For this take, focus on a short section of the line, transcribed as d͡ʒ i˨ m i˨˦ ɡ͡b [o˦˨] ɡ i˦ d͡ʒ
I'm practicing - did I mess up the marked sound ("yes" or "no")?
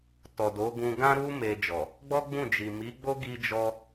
yes